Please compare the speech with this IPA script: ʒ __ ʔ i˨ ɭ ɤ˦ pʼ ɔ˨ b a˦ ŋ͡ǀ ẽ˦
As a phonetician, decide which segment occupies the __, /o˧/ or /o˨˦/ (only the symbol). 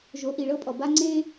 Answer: o˨˦